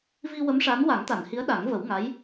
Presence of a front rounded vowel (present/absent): absent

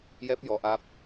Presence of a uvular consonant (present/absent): absent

